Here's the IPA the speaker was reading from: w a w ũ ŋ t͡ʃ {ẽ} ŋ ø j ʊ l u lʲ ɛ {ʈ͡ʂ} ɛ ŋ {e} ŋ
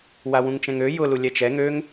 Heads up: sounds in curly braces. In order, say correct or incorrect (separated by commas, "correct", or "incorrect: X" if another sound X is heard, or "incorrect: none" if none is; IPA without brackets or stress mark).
incorrect: ɛ̃, incorrect: t͡ʃ, incorrect: ø